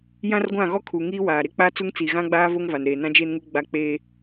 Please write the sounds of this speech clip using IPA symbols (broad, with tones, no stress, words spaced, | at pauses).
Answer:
jã˦rɡʷã˦˨ɣɔ˦ kʰu˨ŋi˦waː˨ ɾe˦k͡pa˦ t͡su˦ŋt͡si˨ ɣã˦ɡ͡baː˦ vo˦ŋva˨n ɾeː˨ nã˦d͡ʒeː˦nŋu˦ ɡ͡ba˦ k͡peː˦